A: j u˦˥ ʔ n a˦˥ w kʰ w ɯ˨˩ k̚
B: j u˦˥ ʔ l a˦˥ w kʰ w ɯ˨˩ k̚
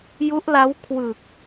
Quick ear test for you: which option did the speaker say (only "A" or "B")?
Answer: B